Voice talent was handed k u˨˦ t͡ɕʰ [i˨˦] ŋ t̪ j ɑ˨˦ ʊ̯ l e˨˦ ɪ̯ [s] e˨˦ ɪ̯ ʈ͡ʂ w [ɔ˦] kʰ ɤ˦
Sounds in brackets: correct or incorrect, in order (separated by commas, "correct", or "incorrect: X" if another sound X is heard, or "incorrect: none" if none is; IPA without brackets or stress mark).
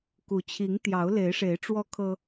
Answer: correct, incorrect: ʂ, correct